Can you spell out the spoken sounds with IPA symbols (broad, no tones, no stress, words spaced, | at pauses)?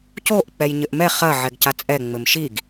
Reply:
coʔ k͡pɛjɲɘʔmɛ χɐ ʕɛɡcat͡sʼɛ ŋ͡mɘmʃiɡ